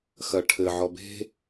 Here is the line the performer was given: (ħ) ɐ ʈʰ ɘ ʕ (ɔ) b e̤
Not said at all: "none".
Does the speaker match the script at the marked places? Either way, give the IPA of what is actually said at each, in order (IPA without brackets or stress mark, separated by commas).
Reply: x, ɔ